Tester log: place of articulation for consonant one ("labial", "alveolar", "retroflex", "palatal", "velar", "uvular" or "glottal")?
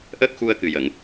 glottal